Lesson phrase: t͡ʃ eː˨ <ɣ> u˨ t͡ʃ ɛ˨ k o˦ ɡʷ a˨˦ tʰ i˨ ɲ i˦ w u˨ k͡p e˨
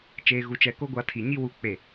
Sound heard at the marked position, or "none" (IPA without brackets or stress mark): ɣ